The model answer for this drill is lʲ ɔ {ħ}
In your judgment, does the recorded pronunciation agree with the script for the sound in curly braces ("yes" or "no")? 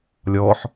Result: yes